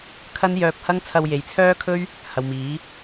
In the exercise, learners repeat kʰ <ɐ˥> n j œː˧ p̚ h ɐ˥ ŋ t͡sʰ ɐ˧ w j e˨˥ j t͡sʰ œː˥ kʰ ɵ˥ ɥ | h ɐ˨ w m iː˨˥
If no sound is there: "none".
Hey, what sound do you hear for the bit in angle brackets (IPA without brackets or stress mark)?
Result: ɐ˥